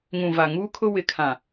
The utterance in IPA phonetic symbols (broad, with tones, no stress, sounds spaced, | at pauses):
ŋ ũ˨ v a˨ ŋ uː˦ kʰ ʊ˦ w ɪ˨ kʰ ã˨